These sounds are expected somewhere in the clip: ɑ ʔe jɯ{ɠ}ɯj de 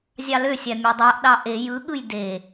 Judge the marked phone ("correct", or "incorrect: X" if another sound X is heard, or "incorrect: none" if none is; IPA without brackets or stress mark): correct